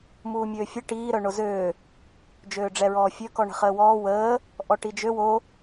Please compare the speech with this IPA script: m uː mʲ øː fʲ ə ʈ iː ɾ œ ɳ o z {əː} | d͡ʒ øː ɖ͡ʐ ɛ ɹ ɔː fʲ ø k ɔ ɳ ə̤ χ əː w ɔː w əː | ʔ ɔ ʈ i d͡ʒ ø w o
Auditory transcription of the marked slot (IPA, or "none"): øː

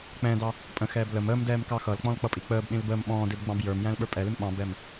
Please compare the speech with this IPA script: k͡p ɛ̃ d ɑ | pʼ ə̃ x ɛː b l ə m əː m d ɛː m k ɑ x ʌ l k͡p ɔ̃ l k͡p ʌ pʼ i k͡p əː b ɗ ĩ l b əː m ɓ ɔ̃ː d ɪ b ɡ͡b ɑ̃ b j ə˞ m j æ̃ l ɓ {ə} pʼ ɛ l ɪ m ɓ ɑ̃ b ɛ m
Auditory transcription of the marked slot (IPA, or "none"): ə˞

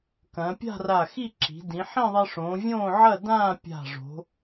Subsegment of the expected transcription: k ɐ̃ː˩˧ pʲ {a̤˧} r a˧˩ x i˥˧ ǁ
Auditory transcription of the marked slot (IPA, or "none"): a̤˥˧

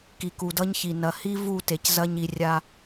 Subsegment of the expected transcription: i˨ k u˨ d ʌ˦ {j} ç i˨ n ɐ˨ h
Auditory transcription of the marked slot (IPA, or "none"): ɲ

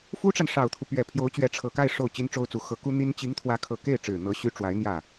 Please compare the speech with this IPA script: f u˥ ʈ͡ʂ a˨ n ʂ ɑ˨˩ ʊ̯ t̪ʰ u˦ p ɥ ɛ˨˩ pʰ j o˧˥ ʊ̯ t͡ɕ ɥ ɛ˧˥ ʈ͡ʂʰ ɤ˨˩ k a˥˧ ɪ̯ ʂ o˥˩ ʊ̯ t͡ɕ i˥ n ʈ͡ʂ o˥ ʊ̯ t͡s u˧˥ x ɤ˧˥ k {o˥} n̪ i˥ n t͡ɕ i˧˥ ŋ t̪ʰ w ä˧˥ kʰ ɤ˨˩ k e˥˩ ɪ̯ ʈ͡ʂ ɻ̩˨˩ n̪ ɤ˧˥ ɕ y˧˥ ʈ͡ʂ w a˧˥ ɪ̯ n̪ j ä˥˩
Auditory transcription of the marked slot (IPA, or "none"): u˥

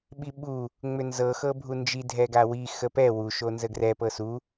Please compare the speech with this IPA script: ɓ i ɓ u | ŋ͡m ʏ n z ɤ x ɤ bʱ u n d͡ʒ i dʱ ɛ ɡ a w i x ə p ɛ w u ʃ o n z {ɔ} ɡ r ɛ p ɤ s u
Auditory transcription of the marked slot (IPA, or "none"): ə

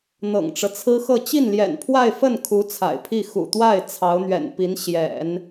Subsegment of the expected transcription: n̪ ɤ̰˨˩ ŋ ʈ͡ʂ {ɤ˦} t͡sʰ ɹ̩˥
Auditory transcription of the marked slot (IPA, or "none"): ɤ˦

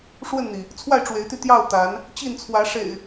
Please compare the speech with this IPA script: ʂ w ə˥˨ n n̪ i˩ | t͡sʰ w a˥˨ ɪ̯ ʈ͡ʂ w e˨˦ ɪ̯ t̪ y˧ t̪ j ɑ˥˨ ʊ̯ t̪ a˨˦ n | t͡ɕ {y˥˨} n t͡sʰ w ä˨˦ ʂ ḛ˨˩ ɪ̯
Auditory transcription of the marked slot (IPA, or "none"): i˥˨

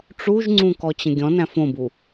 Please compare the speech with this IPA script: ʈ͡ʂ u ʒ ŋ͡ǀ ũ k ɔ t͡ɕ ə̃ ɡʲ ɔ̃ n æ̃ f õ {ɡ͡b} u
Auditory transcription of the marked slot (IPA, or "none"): b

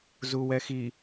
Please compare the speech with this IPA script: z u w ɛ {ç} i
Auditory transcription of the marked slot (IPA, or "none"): x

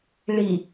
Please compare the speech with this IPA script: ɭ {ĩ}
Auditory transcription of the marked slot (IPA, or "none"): i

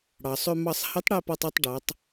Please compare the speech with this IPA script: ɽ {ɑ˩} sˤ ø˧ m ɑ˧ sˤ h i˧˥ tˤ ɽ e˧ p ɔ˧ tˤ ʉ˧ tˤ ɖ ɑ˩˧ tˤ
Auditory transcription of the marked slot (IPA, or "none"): ɑ˩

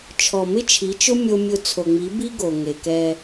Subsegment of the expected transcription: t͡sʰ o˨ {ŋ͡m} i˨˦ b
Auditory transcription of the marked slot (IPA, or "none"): ŋ͡m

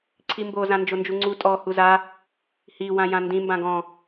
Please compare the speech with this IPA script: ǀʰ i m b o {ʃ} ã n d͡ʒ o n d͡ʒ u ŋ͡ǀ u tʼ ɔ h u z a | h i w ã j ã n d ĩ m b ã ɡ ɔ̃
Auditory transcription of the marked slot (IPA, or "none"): z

